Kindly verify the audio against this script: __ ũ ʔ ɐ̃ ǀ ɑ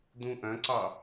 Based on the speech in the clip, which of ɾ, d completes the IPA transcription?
d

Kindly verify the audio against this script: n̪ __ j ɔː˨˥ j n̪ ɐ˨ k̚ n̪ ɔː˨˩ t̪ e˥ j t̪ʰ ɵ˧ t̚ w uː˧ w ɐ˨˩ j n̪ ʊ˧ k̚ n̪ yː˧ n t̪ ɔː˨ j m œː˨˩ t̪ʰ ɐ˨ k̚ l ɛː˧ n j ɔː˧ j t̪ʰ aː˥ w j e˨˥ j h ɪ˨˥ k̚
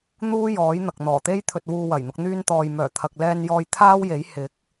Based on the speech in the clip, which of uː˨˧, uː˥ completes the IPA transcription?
uː˥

